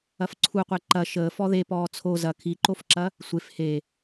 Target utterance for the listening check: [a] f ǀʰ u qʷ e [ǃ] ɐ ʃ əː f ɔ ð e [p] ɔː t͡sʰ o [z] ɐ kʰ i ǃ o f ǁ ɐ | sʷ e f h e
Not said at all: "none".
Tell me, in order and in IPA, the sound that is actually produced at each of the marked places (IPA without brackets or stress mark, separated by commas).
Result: ɐ, ǃ, p, z